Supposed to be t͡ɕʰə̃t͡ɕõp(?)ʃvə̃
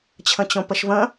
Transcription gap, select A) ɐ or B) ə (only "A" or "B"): B